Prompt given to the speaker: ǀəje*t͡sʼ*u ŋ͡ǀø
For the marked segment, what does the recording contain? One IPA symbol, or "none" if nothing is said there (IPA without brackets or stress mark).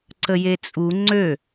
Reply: t͡sʼ